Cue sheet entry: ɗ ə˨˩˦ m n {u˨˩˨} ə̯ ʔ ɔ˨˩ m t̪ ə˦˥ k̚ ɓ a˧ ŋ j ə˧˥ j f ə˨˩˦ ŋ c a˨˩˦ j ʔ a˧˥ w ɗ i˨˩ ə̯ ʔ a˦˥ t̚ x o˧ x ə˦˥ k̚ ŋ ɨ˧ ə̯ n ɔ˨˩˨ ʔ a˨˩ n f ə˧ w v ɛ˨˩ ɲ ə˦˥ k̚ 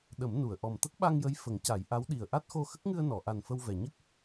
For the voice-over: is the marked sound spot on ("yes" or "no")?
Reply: yes